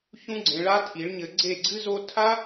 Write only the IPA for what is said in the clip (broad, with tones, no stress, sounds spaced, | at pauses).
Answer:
ç ũ˥ ɡ͡ǀ ẽ˧ ɭ a˥ tʰ i˩˥ ɭ ɲ ɘ˧ ɡ͡ǀ e˥˩ ɡ͡ǀ ɨ˥ z o˥ tʰ a˥